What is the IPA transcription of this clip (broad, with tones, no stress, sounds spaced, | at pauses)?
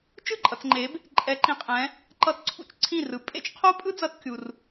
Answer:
t͡ʃ ɯ˥˩ ǃʼ ʌ˨ t͡s ŋ͡ǃ e˨˦ b | ǃʼ ɛ˨˦ ǃ ĩ˨ qʼ ɛ̃˨˦ | ǃ ʌ˧˥˧ t ǀʰ ṵ˥˩ t͡ʃ ǀʰ ĩ˥˩ r ɯ˨˦ pʼ ḛ˥ t͡ʃ qʰ o˥ pʼ ɯ˥ d͡z ʌ˧˥˧ t kʲ u˨ r